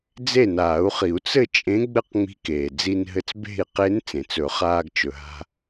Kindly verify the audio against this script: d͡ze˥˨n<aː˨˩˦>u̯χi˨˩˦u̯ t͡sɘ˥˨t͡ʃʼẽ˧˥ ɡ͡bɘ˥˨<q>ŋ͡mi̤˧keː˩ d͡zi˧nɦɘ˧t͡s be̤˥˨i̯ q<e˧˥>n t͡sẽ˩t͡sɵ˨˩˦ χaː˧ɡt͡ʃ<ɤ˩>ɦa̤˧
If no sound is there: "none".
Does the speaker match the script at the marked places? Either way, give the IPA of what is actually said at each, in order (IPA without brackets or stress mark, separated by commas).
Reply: aː˨˩˦, q, e˧˥, ɵ˩